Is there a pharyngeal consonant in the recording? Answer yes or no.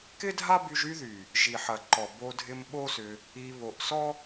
yes